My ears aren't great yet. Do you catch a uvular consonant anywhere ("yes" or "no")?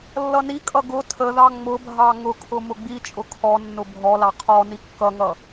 yes